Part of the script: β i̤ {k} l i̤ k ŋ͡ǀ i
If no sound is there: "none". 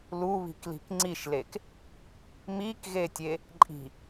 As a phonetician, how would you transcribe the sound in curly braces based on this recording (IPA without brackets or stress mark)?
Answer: k